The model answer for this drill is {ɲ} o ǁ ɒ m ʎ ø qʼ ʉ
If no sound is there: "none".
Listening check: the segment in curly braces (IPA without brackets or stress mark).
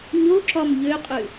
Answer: ɲ